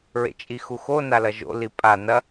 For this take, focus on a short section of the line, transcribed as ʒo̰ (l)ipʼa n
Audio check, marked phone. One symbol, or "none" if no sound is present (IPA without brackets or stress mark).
l